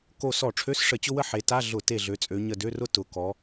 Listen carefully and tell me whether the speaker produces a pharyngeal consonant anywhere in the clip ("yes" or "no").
yes